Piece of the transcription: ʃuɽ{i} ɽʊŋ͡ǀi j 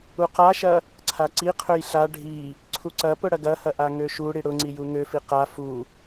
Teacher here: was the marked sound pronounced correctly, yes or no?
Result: yes